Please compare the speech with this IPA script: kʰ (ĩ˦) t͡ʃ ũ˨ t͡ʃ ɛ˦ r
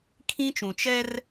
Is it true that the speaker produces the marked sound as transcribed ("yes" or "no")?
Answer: yes